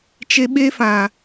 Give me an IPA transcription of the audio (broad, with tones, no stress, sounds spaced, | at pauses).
t͡ʃ e˧ ɓ e˦ f ã˨